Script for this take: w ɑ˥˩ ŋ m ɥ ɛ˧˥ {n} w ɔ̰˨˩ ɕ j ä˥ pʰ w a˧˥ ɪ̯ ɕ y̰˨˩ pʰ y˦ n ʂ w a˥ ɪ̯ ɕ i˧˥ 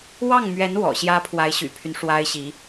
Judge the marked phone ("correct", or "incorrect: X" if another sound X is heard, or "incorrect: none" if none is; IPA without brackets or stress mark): correct